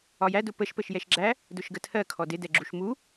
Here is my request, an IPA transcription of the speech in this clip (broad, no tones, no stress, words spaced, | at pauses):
ɒjædʊ pəʃpəʃ jɛʃɡ͡ǁæ | dʊʃɡətʰɜ kʰɔdɪ dɛɡ͡ǁuʃmu